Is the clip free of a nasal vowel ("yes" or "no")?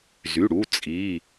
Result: yes